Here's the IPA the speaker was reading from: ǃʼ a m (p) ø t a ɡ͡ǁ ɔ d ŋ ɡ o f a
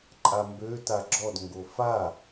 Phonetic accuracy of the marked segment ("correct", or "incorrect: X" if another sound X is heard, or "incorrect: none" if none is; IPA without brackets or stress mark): incorrect: b